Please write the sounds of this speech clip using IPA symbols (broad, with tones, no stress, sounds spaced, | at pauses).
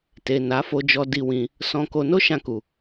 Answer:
t e˨ n a˨˦ f o˧ d͡ʒ ɔ˧ d i˧ w ĩ˧ | s ɔ̃˧ k o˧ n o˦ ʃ ã˧ k u˨